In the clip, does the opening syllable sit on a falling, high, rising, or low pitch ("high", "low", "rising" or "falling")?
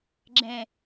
low